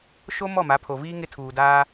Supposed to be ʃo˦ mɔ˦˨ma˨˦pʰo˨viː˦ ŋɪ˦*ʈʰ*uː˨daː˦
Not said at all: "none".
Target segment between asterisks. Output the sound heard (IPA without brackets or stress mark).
tʰ